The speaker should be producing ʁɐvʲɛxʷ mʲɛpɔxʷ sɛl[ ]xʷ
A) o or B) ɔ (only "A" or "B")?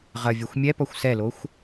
A